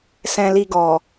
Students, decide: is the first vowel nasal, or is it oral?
nasal